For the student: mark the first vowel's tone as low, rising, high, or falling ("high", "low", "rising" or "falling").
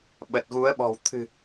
low